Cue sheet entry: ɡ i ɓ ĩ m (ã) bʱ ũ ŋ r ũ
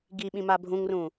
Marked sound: incorrect: a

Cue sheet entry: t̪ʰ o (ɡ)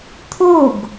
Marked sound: correct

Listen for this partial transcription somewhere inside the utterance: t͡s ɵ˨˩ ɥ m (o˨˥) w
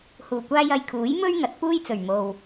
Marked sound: incorrect: o˨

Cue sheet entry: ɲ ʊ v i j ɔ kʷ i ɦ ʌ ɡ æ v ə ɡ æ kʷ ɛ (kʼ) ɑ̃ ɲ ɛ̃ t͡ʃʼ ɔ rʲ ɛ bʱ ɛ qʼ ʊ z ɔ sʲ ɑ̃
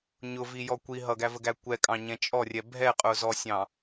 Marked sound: correct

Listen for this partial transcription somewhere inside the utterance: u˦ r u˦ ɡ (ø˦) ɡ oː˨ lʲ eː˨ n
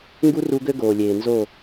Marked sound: correct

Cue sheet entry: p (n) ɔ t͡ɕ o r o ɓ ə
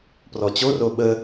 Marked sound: incorrect: r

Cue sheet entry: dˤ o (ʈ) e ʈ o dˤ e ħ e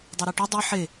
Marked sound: incorrect: ɾ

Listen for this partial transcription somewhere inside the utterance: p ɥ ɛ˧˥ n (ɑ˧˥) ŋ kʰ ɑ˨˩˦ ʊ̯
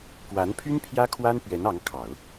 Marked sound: correct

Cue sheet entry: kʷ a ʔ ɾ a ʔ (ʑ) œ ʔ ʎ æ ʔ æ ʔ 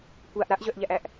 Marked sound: correct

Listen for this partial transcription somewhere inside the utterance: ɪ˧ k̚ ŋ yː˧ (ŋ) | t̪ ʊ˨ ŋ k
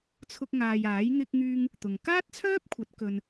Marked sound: correct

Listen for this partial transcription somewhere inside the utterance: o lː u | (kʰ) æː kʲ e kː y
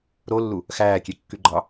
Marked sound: incorrect: x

